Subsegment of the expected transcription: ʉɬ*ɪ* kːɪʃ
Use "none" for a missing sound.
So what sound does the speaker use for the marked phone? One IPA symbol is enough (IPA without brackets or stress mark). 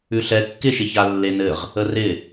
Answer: ɛ